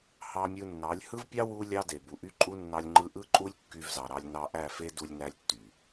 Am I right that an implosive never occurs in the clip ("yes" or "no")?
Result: yes